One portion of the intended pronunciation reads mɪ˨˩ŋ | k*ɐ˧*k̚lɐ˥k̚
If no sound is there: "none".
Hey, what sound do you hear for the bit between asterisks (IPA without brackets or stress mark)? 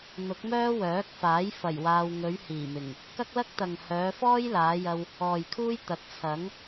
ɐ˥